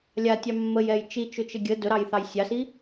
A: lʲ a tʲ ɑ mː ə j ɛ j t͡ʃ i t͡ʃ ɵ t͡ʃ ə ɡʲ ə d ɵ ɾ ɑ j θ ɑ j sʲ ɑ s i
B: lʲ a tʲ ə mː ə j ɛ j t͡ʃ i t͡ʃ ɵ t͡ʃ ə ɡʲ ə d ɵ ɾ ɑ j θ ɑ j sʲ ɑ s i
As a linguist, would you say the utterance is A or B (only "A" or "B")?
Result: A